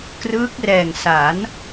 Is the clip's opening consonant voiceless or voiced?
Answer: voiceless